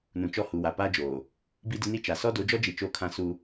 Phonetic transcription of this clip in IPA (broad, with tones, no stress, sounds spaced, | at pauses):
n ũ˨ t͡ʃ ɔ˦ h u˨ w a˨ p aː˦ d͡ʒ oː˨ | b i˦ d ɪ˦ n i˦ t͡ʃ a˨ s ɔ˦ d o˨˦ d͡ʒ ɔ˦ d͡ʒ i˨ t͡ʃ o˦˨ kʰ ã˦ s u˦